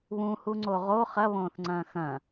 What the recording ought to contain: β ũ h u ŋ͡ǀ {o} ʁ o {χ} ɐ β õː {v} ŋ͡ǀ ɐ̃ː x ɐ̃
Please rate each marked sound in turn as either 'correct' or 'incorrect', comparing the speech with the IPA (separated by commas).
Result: correct, correct, incorrect